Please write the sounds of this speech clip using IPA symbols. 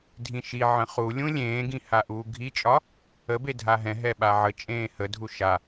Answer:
dʱĩʃiʕə̃ χulʲũ lʲẽːɡĩ haʔuːɡʱit͡ʃʼɒ | ə bedʱaɦɛ̃ɦɛ ɓaʕət͡ʃʼẽː hədʱu ʃa

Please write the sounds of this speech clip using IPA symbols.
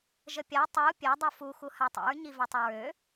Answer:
ʒəpʲa tˤu pʲɛ dˤufu xuhatˤḭɹ ɲivɛtˤɛɹø

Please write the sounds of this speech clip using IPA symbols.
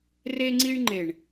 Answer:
re˧ŋ͡ǀi˧ɳŋ͡ǃe˨ɳ

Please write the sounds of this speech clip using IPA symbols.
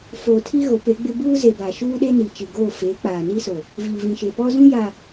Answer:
foː˨tʰi˦ ɣo˨˦pe˨˦ɡ͡bɪ˦ buː˦ze˨ ba˨ʃuː˦ ɗe˦ni˨t͡ʃi˨ɡoː˦˨ feː˨˦k͡paː˨ni˦so˨ | viː˨vĩ˨ ʃe˨pɔ˦ zũ˦ja˨

